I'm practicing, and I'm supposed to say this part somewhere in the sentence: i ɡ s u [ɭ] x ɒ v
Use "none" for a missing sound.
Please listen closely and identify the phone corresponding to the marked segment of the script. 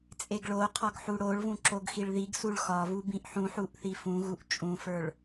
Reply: ɭ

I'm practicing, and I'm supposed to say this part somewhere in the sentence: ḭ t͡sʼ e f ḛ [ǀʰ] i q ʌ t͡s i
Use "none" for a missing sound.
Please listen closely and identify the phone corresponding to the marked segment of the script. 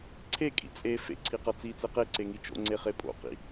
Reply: ǀʰ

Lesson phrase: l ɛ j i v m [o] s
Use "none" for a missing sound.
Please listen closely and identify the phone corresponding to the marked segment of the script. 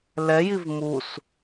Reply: u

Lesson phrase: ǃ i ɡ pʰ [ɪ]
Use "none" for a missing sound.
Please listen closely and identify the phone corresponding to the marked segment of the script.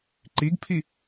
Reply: i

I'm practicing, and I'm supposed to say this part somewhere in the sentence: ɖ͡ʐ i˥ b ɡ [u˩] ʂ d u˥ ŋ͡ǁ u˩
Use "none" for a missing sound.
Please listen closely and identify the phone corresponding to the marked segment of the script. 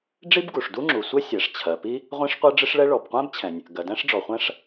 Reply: u˩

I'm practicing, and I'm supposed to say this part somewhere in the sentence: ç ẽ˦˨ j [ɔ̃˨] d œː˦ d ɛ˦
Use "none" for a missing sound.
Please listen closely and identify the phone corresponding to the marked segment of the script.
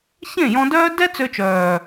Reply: ɔ̃˧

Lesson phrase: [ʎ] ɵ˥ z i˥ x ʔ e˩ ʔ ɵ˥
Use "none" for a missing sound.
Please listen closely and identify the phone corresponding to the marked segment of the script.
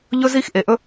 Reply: ʎ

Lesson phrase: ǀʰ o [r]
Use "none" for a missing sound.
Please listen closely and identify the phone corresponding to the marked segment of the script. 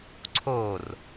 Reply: r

